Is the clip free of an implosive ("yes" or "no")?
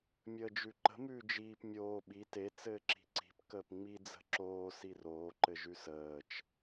no